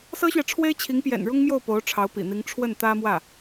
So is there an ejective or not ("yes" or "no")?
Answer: no